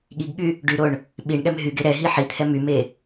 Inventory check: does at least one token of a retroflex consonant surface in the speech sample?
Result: yes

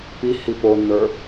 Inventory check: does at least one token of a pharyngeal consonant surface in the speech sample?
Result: no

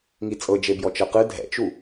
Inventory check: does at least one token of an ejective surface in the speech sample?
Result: yes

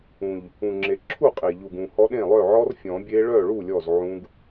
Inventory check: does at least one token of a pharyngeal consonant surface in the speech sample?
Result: yes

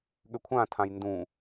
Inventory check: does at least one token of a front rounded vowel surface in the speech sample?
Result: yes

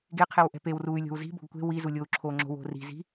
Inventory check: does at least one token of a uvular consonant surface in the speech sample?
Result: yes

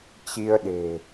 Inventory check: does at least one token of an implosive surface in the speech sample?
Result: yes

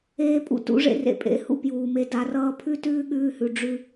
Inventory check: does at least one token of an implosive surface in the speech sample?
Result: yes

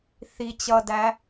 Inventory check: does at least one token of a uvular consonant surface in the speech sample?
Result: no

